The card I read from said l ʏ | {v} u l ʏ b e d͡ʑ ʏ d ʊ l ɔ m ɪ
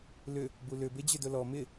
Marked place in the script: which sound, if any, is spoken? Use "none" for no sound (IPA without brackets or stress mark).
b